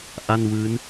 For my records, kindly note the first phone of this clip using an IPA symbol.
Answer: ʔ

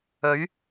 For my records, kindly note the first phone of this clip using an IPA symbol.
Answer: ɵ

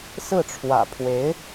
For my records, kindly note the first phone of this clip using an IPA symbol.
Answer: s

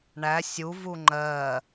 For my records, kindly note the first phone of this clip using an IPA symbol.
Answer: ɳ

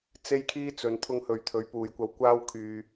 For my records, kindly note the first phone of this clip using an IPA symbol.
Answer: t͡s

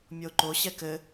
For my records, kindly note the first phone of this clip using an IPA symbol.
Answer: mʲ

